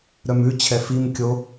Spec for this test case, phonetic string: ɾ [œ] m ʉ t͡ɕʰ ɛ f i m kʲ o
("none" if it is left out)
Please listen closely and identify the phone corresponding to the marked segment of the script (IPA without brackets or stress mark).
œ